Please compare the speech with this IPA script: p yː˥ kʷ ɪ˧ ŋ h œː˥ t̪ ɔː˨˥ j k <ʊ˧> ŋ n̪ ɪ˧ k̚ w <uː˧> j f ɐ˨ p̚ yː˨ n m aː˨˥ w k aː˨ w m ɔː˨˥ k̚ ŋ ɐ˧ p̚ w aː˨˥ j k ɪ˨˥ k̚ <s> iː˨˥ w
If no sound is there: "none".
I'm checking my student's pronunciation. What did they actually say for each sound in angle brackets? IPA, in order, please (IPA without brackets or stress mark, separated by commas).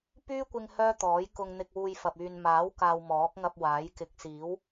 ʊ˧, uː˧, s